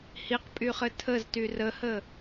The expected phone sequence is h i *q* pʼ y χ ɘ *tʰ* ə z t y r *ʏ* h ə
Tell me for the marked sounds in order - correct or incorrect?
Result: correct, correct, incorrect: ə

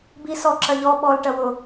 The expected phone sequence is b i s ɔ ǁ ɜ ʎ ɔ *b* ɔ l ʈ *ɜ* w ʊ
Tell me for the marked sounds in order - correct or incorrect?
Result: incorrect: ɓ, correct

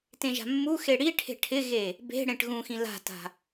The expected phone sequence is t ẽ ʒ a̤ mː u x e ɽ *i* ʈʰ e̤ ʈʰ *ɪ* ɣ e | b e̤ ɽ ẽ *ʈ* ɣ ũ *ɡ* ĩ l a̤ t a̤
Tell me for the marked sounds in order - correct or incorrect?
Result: correct, correct, correct, incorrect: x

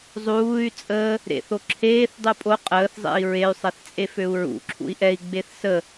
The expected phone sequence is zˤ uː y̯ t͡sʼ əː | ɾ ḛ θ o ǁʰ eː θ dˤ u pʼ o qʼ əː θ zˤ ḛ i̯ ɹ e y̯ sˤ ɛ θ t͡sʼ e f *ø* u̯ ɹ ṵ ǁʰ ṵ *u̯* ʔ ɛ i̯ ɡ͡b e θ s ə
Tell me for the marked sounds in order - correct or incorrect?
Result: correct, incorrect: i̯

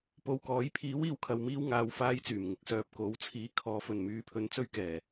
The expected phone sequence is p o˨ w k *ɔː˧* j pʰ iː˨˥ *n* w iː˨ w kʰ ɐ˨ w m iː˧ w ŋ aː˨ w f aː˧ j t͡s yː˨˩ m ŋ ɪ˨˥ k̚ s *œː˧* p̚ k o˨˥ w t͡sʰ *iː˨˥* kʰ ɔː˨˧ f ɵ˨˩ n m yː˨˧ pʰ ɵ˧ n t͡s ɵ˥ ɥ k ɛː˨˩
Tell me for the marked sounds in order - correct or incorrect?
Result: incorrect: ɔː˨˥, incorrect: none, correct, correct

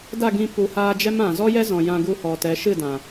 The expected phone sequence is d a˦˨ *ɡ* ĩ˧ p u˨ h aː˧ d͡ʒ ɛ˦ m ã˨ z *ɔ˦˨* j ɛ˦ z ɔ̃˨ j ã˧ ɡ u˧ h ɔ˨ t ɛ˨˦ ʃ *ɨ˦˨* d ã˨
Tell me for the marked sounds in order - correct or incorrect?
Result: correct, incorrect: ɔ˦, correct

